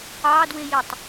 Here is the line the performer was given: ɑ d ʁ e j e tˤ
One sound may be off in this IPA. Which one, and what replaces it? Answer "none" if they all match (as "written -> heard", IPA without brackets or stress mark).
ʁ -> w